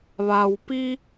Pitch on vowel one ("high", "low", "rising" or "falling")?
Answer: low